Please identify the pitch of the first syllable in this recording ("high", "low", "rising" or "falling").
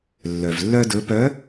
low